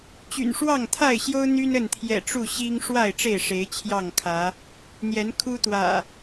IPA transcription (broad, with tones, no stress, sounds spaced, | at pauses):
t͡ɕ y̰˨˩ n ʂ w ɑ˥˨ ŋ t̪ʰ a˥˨ ɪ̯ ɕ j o˦ ʊ̯ n̪ y˦ n ə˥˨ n t̪ʰ j ɛ̰˨˩ ʈ͡ʂ u˥˨ ɕ i˦ ŋ ʂ w a˥˨ ɪ̯ ʈ͡ʂ e˥˨ ɪ̯ ʂ e˨˦ ɪ̯ t͡ɕʰ j ɑ˥˨ ŋ kʰ ä˨˦ | n̪ j ɛ˨˦ n kʰ u˦ t̪ w ä̰˨˩